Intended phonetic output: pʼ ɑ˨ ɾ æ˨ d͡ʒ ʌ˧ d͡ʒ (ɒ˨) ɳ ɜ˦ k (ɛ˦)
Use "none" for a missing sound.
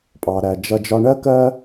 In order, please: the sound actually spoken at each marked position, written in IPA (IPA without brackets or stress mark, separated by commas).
ɒ˧, ɜ˦